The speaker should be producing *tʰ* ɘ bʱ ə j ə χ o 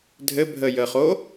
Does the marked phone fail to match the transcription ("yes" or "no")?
yes